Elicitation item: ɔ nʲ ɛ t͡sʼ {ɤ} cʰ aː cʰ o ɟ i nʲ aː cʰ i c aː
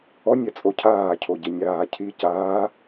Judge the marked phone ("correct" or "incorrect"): incorrect